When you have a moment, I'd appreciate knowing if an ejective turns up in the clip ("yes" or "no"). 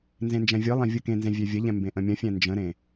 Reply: no